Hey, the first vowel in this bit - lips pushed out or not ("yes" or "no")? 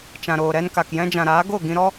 no